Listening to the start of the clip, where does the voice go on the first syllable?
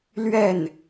falling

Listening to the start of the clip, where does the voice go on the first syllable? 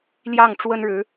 falling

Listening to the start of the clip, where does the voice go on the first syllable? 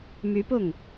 rising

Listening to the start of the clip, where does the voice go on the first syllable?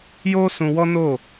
high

